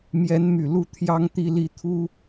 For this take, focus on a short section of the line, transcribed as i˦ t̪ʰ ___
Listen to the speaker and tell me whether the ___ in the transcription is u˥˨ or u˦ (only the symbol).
u˦